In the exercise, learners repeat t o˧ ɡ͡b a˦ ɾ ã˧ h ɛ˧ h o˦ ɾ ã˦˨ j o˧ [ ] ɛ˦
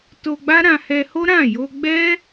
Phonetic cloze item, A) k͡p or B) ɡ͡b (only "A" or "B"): B